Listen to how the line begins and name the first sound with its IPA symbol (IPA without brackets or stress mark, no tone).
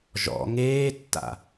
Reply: ʒ